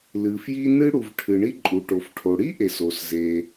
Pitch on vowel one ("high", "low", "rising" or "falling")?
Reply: low